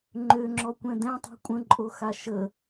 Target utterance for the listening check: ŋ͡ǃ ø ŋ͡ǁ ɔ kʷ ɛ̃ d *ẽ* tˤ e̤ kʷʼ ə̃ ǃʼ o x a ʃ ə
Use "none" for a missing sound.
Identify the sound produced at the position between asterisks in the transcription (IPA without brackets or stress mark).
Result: ɛ̃